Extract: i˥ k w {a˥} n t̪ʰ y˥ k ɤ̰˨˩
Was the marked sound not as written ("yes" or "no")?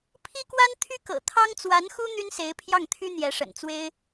no